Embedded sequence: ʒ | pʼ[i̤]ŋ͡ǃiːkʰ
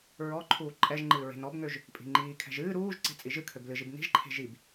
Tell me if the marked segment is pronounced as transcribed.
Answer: yes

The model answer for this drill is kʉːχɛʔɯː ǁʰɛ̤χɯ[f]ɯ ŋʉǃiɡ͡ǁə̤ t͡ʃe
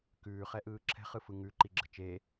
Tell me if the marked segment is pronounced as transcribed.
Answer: yes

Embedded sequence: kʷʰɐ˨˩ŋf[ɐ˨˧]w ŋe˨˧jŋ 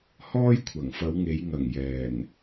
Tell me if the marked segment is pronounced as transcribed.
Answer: yes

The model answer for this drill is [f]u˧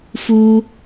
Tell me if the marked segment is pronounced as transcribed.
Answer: yes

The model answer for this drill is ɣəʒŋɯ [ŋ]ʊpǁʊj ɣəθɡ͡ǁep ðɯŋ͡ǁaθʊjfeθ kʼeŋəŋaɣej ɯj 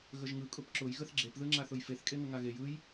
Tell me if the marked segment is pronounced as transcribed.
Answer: no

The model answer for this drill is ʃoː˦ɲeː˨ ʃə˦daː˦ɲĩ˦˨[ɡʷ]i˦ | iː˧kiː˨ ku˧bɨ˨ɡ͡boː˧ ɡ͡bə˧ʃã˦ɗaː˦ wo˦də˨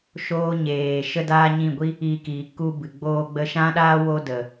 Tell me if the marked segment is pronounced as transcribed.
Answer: yes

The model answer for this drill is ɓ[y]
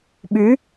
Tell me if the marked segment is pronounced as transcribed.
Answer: yes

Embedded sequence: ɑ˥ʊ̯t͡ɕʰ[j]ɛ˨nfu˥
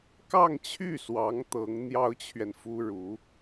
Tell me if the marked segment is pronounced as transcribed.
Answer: no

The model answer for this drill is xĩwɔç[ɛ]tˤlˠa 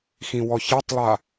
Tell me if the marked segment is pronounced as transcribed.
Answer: yes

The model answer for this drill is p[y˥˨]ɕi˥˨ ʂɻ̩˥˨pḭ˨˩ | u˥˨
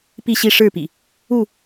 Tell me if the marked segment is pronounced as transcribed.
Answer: no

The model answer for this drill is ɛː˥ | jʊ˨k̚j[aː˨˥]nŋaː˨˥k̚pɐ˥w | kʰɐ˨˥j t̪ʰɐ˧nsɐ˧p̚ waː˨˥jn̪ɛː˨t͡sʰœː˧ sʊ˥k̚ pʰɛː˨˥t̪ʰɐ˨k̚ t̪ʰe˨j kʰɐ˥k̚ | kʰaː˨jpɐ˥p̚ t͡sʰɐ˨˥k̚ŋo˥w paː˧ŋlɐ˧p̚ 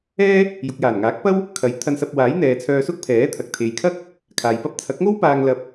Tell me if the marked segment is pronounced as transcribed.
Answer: no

